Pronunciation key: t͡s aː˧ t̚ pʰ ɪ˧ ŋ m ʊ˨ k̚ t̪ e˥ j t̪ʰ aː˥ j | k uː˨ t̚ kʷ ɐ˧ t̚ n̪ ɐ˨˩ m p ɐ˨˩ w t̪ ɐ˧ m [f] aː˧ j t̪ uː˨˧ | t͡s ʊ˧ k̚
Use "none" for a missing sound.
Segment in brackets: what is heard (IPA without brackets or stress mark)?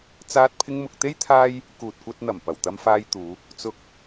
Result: f